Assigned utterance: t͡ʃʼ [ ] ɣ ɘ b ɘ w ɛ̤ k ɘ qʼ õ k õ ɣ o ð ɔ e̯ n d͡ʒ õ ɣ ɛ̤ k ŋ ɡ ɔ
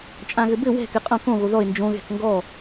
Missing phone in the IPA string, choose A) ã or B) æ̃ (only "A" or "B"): A